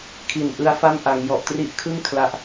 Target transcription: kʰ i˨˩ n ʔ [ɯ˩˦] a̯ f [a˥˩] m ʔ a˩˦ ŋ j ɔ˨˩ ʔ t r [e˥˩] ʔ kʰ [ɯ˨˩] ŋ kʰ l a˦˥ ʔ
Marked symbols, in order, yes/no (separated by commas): no, yes, no, no